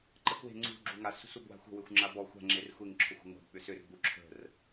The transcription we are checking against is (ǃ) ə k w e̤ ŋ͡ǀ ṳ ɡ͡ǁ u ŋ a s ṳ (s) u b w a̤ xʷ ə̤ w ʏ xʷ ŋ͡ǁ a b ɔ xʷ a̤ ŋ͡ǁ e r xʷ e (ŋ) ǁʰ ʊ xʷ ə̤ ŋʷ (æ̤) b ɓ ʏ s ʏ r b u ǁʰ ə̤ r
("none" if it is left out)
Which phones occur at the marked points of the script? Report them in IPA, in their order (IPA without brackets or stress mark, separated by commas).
ǃ, s, ŋ, a̤